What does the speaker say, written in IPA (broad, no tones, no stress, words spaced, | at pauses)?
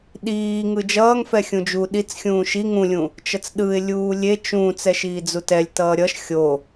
ɗiː ŋɯd͡ʒʌːŋfɛ xʲũd͡ʒu ɗit͡s xʲũːʃi ŋũlʲũ | t͡ʃʌt͡sɗɯɪ̯lʲuː lʲe t͡ʃũ t͡sɛʃiːd͡zutɛlʲ tʌːɾʲʌʃ xʲo